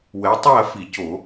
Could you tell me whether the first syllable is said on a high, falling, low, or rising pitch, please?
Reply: rising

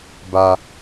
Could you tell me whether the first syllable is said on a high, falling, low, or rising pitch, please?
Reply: high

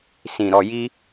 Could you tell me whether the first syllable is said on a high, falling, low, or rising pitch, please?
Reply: low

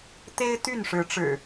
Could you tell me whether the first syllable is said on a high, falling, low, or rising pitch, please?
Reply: high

